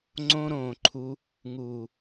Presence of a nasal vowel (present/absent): present